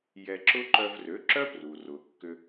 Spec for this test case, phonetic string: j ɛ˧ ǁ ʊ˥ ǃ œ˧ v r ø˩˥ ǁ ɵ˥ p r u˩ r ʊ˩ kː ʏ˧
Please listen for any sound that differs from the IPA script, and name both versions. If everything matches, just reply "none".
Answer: ɵ˥ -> œ˥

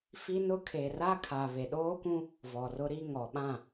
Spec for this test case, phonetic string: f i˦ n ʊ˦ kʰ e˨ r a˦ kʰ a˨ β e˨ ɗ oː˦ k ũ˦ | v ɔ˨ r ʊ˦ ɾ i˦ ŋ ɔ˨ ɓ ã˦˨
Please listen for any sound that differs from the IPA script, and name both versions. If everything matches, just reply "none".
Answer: none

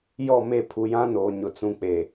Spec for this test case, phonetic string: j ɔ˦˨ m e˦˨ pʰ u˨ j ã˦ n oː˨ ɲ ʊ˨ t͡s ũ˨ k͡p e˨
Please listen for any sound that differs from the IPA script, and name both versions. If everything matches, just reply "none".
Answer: none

